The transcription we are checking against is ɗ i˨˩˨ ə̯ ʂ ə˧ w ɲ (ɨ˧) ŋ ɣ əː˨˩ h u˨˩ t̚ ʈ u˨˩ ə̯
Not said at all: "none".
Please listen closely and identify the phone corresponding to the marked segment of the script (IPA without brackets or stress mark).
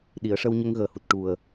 ə˧